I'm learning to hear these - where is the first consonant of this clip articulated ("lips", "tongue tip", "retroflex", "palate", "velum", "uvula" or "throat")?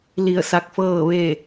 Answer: tongue tip